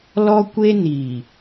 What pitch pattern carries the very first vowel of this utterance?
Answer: high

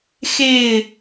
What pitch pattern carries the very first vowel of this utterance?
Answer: falling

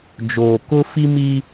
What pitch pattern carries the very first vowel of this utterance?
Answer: low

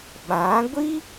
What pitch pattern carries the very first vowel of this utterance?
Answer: rising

